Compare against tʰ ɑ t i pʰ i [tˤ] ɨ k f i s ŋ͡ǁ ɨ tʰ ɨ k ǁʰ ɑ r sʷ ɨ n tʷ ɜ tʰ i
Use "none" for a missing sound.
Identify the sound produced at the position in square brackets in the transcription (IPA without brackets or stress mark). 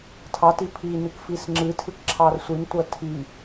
n